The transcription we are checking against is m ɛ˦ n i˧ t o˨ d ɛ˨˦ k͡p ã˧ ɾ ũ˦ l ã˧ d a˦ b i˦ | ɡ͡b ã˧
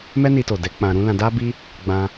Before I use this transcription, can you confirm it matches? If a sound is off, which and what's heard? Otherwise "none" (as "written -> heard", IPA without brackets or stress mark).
none